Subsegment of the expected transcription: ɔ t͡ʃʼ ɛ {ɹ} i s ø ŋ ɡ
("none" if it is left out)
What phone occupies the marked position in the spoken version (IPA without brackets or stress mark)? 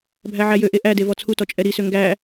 ɾ